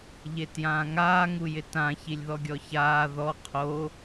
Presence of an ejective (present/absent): absent